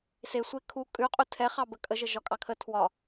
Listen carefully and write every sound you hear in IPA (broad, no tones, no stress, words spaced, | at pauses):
sesʷe kʰu kʼʉqʼu tʰɛχɑbə kʼəʒə ʒɒkʼɑkʰə tʰwɒ